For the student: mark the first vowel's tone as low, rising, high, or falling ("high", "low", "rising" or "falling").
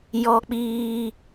high